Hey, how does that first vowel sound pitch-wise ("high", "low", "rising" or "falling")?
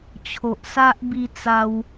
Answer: low